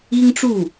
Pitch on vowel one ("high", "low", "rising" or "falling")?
high